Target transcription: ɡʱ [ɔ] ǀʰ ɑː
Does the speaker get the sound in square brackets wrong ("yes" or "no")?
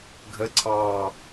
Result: yes